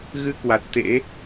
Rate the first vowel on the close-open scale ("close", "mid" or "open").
close